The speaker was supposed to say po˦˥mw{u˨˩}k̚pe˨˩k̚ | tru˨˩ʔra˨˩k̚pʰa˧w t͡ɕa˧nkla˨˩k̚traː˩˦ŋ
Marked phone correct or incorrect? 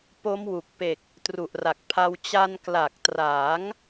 correct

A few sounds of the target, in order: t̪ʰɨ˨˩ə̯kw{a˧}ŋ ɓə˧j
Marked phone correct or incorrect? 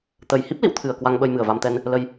correct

